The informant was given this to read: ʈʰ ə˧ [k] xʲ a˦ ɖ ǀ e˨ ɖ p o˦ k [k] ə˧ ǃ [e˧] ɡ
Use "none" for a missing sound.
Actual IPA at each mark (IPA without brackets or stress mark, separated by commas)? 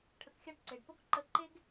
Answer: k, ǃ, e˦